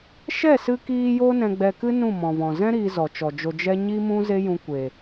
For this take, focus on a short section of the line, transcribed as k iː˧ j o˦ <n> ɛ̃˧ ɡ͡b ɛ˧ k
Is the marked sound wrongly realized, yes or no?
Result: no